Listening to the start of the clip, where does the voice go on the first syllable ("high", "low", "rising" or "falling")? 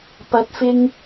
rising